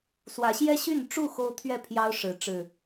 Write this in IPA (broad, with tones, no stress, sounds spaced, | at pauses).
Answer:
s w ä˨˦ ɕ j ɛ˦ ɕ y˥˨ n ʈ͡ʂ u˥˨ x o˦ ʊ̯ t̪ʰ ɥ ɛ˥˨ pʰ j ɑ˦ ʊ̯ ʂ ɻ̩˨˦ ʈ͡ʂ ɻ̩˨˩